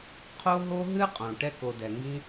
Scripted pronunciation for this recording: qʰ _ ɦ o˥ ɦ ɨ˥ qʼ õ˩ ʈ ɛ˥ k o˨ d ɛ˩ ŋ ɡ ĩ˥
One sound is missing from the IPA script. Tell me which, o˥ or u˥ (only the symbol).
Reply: o˥